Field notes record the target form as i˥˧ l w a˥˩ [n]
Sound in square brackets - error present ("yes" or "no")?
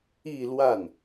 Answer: no